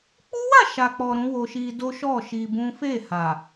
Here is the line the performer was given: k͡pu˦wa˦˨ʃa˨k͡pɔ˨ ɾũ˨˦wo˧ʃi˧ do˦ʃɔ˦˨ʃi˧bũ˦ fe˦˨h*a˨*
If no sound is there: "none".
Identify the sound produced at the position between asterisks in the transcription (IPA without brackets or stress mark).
a˨